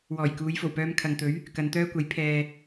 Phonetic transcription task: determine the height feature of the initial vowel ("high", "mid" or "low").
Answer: mid